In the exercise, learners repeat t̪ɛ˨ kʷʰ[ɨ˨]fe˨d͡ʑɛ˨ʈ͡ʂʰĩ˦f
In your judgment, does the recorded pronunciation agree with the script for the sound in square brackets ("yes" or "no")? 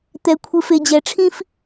yes